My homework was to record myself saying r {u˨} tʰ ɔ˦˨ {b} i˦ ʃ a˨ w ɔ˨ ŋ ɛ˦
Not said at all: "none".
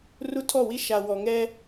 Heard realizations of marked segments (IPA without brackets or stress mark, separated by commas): u˦, w